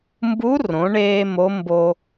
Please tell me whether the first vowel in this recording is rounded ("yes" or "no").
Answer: yes